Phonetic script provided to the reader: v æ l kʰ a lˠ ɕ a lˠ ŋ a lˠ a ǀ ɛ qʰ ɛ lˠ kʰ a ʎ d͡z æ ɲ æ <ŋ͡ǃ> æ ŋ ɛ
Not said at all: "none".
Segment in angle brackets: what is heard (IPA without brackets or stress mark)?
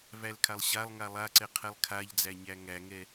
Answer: ŋ